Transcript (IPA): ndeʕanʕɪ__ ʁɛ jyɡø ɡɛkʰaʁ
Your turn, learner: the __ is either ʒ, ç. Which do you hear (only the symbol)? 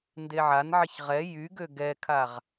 ç